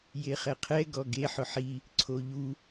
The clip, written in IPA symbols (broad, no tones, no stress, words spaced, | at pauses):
jeχɛqʰɛ ɡɔɡe ħʊħi | ǀʰoʎu